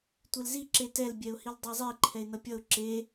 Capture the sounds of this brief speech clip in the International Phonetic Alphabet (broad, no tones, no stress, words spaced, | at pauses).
tʷelzi ǁetɛlbʲɛʊ̯ hildˤɛzˤi ǃʰɛɪ̯nʌpʲʌʊ̯ ǁe